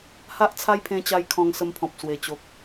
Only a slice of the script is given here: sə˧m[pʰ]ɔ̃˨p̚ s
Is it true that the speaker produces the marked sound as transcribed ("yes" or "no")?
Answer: yes